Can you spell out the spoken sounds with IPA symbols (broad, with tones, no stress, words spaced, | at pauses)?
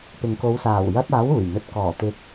pɪ˨ŋko˨˧w saː˨˩wjɐ˧t̚ aː˨˥wuː˨˩jn̪ɵ˨˥t̚ kɔː˨˩ t̪ɪ˨˥k̚